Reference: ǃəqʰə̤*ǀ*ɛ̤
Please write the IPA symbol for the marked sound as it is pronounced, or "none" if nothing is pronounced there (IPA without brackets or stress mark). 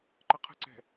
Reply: ǀ